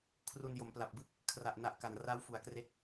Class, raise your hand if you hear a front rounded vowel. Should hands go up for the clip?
no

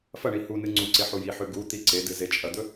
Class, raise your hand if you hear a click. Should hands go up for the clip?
yes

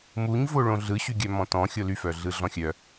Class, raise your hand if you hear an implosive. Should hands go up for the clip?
no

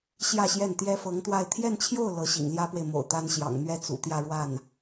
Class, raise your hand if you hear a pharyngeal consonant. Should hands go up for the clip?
no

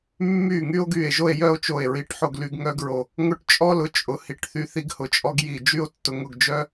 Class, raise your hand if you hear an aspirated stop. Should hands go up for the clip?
no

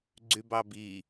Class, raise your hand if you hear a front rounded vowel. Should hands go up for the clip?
yes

